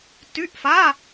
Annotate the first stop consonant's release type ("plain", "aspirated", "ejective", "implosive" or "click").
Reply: plain